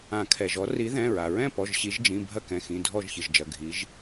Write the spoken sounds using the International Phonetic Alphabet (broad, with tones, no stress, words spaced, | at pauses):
ã˨˩˦kʰɛ˩ʒɔ˨˦ ri˨˦ðɛ̃˩˧˩ɹa˩ɹɛ̃˥˨ pɔ˩˧˩ʒɕi˨˦ʒd͡ʒĩ˩˧˩ bʱɐ˥˨kɛ̃˩˧˩xĩ˩˧˩ dʱɔ˥˨ʒçɨ˩ʒd͡ʒɐ˩˧˩ ɡʱi˨˦ʒ